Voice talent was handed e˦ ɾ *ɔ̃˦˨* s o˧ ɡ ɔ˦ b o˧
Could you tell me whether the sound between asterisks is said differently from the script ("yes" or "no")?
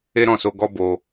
no